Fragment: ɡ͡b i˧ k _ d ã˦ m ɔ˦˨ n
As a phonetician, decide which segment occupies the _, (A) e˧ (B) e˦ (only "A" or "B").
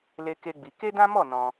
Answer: B